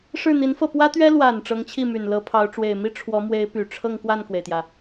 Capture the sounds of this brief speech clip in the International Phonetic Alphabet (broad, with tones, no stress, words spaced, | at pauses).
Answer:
ʂɻ̩˥˩n̪i˧˥nfɤ˥˩ pwä˥t̪ɥɛ˥ lwa˨˩n ʈ͡ʂɤ˧˥ŋt͡ɕʰi˥˩my˨˩n lɤ˧˥pʰɑ˧˥ʊ̯ ʈ͡ʂwe˨˩ɪ̯mi˥ ʈ͡ʂʰwɔ˧˥mwe˧˥ɪ̯py˨˩ ʈ͡ʂʰɤ˥˧ŋkwa˥˩nkwe˩ɪ̯t̪jä˩